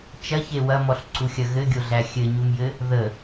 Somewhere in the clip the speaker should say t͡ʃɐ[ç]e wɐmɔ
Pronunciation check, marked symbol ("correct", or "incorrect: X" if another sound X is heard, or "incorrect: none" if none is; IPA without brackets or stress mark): correct